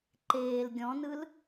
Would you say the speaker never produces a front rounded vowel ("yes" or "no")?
yes